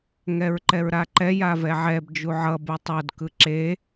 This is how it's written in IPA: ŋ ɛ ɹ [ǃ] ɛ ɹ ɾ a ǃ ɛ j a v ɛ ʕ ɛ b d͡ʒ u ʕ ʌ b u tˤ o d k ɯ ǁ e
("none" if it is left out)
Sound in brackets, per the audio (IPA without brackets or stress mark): ǃ